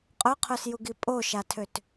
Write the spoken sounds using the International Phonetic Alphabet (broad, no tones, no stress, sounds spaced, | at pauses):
qʼ œ qʰ œ s j u ɡ i pʼ o ʃ a tʰ ø t